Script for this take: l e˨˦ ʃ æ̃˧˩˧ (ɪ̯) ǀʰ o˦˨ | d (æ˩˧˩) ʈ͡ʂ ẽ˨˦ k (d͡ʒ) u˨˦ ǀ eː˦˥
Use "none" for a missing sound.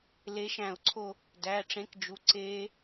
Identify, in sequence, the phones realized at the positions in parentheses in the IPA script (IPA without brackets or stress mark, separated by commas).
ʊ̯, æ˩˧˩, d͡ʒ